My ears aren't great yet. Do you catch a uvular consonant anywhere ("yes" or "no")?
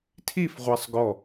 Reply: yes